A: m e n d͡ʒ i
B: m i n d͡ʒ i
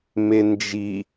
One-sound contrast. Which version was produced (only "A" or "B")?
A